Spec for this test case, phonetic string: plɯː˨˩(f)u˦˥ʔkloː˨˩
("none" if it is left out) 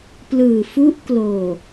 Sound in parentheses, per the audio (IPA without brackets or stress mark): f